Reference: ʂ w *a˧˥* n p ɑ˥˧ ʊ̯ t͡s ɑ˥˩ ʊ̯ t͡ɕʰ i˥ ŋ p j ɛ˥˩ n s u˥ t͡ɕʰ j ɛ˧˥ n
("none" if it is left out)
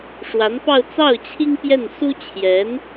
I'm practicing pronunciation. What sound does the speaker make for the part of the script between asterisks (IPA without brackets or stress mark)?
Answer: a˧˥